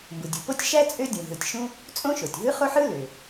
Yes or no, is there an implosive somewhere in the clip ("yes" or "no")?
no